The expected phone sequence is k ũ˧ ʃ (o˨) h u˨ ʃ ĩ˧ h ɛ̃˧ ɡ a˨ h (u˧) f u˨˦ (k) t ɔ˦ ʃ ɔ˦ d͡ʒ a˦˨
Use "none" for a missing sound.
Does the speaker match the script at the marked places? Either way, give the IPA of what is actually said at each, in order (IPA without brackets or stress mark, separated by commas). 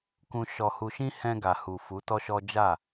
ɔ˨, u˨, none